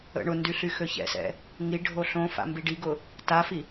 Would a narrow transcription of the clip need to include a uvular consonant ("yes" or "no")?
no